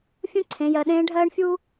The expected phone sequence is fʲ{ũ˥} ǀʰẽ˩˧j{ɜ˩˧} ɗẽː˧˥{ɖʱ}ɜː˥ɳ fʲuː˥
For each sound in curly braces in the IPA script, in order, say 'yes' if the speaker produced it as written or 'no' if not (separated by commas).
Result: yes, yes, yes